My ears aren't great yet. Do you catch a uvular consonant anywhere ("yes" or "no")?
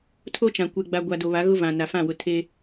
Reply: no